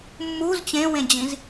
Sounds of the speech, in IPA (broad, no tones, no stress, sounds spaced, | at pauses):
mː u z t͡ɕ ẽ w ẽ d͡ʑ ĩ z